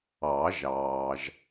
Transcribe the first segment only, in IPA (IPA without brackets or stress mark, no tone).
ɑ